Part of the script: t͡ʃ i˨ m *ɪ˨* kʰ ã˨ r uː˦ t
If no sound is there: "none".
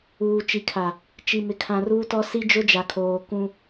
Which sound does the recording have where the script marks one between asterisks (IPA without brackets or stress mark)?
ɪ˨